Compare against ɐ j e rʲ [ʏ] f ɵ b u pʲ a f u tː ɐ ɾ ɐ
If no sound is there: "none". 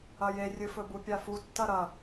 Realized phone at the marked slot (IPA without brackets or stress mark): ɨ